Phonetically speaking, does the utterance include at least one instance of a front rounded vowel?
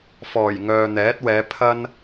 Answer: yes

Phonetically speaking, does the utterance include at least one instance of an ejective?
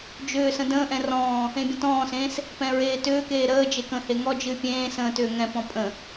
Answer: yes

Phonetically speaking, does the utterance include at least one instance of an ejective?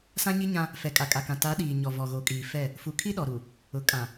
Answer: yes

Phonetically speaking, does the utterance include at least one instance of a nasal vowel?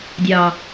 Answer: no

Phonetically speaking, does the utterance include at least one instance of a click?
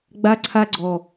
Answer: yes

